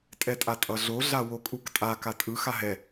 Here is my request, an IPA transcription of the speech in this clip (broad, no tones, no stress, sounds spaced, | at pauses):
tʼ ɛ tʼ a tʼ ʌ ɮ o ɮ a w o kʼ u k tʼ a k a tʼ ɯ x a ɦ ɛ